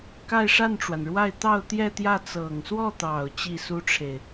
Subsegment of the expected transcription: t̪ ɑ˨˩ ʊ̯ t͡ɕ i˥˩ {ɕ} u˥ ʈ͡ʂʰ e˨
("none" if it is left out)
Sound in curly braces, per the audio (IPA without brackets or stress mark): s